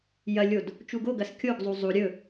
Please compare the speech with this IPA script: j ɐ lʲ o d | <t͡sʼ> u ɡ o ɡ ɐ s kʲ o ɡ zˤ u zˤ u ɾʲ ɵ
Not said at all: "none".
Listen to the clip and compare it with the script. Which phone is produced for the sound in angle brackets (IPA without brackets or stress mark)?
t͡ʃ